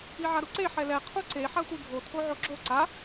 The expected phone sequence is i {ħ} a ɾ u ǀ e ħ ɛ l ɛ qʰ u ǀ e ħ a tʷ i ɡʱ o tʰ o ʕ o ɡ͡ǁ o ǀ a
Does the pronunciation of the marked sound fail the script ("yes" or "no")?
yes